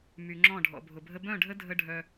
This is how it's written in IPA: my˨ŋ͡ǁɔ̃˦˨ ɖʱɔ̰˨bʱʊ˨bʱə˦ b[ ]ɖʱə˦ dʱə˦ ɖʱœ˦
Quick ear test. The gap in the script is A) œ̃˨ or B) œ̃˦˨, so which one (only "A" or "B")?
B